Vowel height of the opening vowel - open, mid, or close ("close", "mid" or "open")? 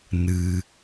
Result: close